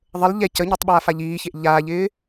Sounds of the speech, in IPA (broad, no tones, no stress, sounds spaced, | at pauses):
ðˤ ə l ʎ ɛ c ə ɲ e tˤ ɓ aː f a ʎ iː ç e ʔ ʎ aː ʎ ɪː